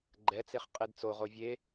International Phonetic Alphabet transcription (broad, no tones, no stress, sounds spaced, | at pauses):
ɡ͡ǃ ɛ t͡s e χ qʼ e d t͡s o ʁ o vʲ e